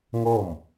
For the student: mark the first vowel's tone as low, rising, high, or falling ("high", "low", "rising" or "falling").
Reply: falling